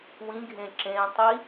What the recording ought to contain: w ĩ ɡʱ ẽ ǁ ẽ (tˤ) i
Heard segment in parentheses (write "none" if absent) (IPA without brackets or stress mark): tˤ